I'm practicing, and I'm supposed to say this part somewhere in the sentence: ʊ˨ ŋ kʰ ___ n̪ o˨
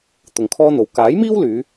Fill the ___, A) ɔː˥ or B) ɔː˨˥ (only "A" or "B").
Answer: A